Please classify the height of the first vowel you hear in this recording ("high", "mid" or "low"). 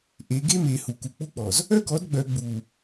mid